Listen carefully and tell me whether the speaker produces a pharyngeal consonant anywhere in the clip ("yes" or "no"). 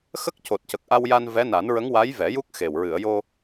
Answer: no